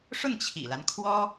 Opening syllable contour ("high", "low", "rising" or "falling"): falling